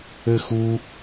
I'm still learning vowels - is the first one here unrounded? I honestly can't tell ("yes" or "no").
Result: yes